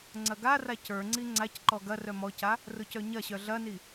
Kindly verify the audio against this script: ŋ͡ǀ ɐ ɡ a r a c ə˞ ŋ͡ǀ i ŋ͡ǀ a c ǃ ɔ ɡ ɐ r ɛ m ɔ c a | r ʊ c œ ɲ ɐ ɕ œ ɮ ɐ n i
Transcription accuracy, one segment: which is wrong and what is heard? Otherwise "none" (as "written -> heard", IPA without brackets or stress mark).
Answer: ɛ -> œ